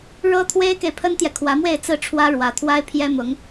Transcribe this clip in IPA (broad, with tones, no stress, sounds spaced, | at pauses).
ɻ ɤ˥ t̪ʰ w e˥ ɪ̯ k e˨ ɪ̯ pʰ ə˥ n t̪ j ɛ˨ kʰ w ä˧˥ m w e˥˧ ɪ̯ t͡s ɹ̩˥˩ ʈ͡ʂʰ w ä˥ ɻ w ä˧˥ t̪ʰ w a˥ ɪ̯ pʰ j ɛ˥ m ʊ˧˥ ŋ